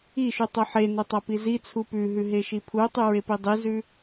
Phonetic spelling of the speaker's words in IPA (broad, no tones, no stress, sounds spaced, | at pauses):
i ʃ ʉ tˤ ɵ ħ e n ɵ tˤ a p i z i t͡sʰ u p ʉ ɦ ʉ ɦ e ʃ i pʰ u tˤ ʉ ɹ e p i dˤ i z ʉ